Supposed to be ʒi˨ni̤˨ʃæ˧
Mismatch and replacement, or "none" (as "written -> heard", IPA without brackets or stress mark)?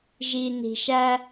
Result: none